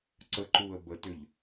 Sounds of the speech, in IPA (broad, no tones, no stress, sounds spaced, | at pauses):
ǀ ə ǃ u ə̯ b ə t ʏ ʎ